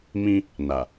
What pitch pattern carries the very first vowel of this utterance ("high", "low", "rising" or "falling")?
high